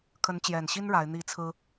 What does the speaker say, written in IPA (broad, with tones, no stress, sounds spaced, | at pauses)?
kʰ ə˨˦ n t͡ɕ j ɛ˨˩ n ɕ i˦ n ɻ a˨˦ ɪ̯ n̪ i˥˨ t͡sʰ ɹ̩˦